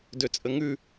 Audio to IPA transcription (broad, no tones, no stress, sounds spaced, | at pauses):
d ø t͡sʼ ə ŋ ʉ